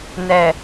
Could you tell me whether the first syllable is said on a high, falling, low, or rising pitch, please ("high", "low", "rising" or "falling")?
low